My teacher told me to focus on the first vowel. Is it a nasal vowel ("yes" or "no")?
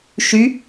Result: no